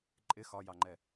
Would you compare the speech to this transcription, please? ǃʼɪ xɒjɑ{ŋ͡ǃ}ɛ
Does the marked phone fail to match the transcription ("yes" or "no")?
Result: no